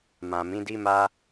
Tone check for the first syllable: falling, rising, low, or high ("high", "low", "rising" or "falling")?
low